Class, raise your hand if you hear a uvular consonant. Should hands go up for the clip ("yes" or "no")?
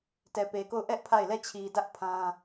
no